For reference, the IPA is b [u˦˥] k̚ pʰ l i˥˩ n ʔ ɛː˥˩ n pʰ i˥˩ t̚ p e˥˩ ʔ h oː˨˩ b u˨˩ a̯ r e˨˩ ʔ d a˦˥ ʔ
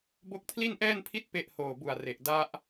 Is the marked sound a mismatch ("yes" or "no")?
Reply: yes